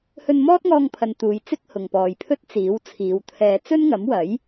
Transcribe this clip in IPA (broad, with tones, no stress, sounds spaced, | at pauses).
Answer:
h ɵ˧ n m ɔː˥ t̚ ŋ ɔː˧ ŋ pʰ ɐ˨ n t̪ uː˨ j t͡s ɪ˥ k̚ h ʊ˨ ŋ p ɔː˨ j pʰ ɵ˥ t̚ t͡s iː˨˥ w t͡sʰ iː˨˧ w t̪ʰ ɛː˧ t͡s ɵ˥ n ŋ ɐ˨˥ m w ɐ˨˥ j